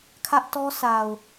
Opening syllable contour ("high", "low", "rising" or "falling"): high